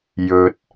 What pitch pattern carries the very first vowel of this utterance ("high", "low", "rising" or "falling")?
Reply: low